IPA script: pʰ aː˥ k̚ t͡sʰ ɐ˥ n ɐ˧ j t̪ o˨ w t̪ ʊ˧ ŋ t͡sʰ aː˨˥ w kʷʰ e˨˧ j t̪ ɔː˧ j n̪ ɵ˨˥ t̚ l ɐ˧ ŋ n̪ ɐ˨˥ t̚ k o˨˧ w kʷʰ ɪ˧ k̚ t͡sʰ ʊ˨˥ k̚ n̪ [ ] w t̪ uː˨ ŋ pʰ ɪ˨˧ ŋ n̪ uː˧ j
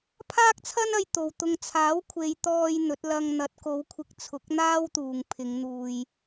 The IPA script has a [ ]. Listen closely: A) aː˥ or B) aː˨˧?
A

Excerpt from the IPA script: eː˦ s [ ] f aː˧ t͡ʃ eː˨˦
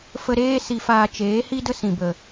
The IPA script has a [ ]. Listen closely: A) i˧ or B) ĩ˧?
A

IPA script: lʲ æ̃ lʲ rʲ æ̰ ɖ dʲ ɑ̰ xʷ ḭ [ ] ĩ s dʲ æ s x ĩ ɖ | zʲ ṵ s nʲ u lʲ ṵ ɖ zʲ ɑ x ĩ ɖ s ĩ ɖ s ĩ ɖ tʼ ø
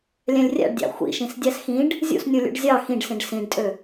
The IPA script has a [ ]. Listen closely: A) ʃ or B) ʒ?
A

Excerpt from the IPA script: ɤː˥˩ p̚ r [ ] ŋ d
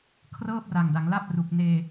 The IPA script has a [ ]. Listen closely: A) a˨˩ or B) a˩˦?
A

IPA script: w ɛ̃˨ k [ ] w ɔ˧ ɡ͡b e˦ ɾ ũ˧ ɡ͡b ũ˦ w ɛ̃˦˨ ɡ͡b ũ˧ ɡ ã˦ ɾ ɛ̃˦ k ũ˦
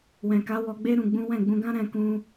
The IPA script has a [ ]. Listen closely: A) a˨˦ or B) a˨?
A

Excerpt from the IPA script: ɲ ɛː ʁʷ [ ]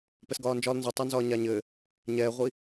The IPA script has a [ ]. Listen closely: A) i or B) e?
A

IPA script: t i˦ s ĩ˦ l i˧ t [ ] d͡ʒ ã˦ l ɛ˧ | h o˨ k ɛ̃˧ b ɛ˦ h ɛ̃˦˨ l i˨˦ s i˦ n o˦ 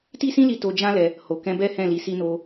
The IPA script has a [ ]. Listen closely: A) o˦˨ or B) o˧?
B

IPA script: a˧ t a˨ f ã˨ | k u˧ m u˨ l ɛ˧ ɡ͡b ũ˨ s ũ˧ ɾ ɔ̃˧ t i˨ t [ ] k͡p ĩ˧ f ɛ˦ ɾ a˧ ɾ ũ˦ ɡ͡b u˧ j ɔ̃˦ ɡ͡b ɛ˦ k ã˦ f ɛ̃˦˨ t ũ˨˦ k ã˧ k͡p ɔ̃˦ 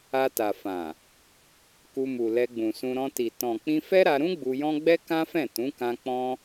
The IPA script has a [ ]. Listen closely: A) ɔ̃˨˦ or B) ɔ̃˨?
B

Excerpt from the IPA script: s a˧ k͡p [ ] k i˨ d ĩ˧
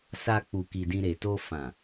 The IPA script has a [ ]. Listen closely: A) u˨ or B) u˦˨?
A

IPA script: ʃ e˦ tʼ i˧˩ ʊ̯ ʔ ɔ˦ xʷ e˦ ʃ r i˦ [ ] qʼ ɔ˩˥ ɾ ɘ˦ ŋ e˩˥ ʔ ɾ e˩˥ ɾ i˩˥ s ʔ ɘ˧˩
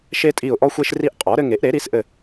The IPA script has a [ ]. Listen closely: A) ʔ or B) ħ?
A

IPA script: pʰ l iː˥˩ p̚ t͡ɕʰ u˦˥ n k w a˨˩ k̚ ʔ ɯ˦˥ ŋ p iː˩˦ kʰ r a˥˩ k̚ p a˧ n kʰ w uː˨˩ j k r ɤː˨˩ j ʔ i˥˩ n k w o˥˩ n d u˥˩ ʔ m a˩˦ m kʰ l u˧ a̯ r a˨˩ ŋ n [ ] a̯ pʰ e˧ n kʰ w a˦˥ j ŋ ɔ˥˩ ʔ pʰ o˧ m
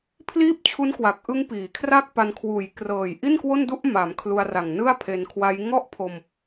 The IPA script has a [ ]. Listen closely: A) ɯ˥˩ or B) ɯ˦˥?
A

